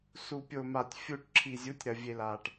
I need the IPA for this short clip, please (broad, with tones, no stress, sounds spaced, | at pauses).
s u˨ pʲ o˨ m a˨ tʲ fʲ u˨ ʈ ǁʰ i˨ zʲ u˨˦ tʲ ɾ ɐ˨ vʲ e˨ l a˨ ʈ